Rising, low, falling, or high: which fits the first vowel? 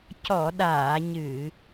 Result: low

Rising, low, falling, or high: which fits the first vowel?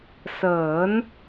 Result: rising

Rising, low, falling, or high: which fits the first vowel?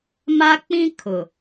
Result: high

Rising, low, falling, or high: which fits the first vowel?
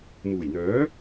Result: low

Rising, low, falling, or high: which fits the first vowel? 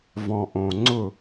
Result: low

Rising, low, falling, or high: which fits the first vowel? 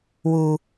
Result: high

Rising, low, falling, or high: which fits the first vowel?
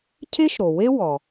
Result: high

